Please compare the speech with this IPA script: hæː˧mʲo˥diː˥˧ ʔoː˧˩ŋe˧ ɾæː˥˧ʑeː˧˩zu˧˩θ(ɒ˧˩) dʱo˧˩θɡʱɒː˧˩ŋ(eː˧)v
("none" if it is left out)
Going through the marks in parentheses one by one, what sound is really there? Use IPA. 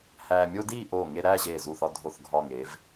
ɒ˧, eː˩˧

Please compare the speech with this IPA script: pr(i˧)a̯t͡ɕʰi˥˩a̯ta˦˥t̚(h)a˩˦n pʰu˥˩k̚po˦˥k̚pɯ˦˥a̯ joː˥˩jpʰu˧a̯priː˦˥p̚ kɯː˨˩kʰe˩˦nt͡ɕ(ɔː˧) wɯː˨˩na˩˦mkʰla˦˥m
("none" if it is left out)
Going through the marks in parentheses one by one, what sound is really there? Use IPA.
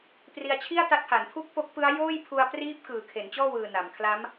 i˧, h, ɔː˥˩

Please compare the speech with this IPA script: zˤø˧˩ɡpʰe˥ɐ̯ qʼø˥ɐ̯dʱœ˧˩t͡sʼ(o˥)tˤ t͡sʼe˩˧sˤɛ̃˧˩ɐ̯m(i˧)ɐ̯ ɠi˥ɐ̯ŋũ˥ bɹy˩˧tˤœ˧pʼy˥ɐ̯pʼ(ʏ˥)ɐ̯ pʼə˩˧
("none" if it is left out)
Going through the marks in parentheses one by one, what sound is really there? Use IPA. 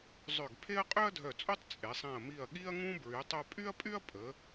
o˥, i˧˩, y˥

